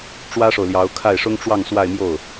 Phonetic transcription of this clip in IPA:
ʈ͡ʂ w ä˥ ʂ o˨ ʊ̯ l j ɑ˧˥ ʊ̯ kʰ a˥˩ ɪ̯ ʂ ʊ˥ ŋ ʈ͡ʂ w ɑ˥˧ ŋ s w a˥˧ ɪ̯ m j o˥˩ ʊ̯

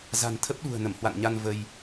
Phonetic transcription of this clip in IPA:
z a̤˨˩ n t̪ʰ ə˦˥ p̚ ɗ ṳ˨˩ ə̯ n ə˧˩ m h w a̰˧˨ n ɲ a˧ n v ə˧ j

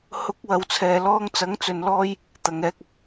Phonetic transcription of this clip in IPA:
h ʊ˨˥ k̚ w ɐ˨˧ w t͡sʰ ɛː˨ l ɔː˥ ŋ t͡s ɐ˨˥ ŋ t͡s ɵ˧ n l ɔː˥ j | t̪ ɐ˨ ŋ ɛː˧ k̚ ɐ˨ k̚

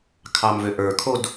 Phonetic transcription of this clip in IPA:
kʰ ɑ m v ø ʔ ə˞ kʰ o d

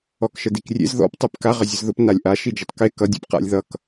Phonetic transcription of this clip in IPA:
ɔ k ʃ ə d i k rʲ ḛ z ð ɔ̰ p tˤ ɛ p k a ʁ ə zʲ ə z ð ʊ p n a lʲ ʔ a ʃ i d͡ʒ ʊ tˤ k e k ʌ dʲ ɛ̰ p q a̰ lʲ ð ʌ k

